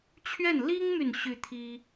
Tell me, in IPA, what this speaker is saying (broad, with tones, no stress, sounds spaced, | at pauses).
t͡ɕʰ ɥ ɛ˥˩ n l i˥ ŋ m y˨ n ɕ y˥˩ t̪ʰ i˥